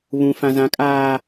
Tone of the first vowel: low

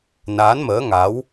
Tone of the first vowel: rising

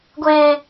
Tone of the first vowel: high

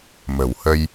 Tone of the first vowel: low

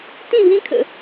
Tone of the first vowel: falling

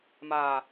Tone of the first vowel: low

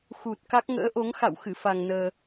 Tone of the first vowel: low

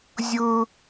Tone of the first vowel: high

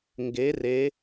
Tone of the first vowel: rising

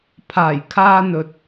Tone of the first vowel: low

